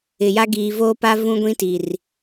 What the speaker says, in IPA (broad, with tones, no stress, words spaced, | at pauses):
ɪ˨ja˦ ɡiː˨voː˦pa˦ vũ˦ɡʷĩ˦ti˨r